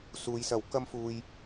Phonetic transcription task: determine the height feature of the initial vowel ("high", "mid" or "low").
high